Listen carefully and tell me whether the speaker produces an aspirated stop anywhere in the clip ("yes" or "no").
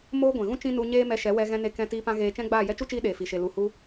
no